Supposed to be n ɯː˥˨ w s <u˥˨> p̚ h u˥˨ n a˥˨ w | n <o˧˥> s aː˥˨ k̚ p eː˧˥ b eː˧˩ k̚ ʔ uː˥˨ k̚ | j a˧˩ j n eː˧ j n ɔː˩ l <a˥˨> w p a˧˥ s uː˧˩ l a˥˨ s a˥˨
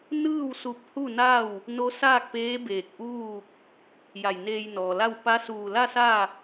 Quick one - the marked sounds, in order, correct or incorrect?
incorrect, correct, correct

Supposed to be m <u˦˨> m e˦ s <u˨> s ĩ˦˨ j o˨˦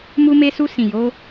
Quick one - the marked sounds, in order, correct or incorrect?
incorrect, incorrect

